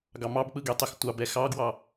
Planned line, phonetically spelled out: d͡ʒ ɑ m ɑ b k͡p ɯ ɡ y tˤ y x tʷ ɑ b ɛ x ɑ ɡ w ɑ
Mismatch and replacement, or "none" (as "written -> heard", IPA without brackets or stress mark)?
d͡ʒ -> ɡ